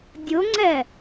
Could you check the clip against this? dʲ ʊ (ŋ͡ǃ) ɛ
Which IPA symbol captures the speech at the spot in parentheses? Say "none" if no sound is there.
ŋ͡ǀ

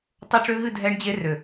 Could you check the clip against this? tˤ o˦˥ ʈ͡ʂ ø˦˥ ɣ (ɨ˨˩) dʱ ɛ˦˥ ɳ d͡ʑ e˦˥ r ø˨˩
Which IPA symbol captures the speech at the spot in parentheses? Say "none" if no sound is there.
ɨ˥˧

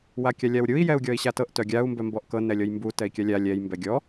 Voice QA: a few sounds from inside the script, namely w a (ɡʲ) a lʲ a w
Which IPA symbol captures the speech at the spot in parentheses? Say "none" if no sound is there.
kʲ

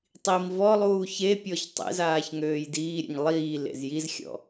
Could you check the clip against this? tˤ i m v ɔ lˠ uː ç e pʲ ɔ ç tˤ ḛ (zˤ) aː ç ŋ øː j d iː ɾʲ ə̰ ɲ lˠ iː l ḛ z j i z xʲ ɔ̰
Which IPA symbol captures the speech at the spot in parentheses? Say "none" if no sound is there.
z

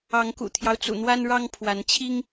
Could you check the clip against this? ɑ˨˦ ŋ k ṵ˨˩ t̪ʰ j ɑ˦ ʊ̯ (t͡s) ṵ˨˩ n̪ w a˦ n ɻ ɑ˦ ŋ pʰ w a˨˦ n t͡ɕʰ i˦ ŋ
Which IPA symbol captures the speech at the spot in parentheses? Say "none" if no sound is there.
t͡s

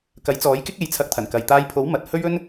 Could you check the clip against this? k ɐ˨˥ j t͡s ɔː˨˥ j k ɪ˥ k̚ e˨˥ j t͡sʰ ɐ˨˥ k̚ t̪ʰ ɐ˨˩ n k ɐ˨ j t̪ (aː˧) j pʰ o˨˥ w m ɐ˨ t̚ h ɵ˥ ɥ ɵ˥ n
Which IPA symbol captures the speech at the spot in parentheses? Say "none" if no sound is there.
aː˧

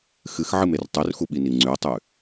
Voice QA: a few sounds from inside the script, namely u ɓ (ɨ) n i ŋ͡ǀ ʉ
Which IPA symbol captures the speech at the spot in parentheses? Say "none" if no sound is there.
i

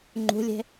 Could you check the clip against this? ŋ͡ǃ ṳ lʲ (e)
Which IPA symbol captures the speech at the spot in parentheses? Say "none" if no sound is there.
e̤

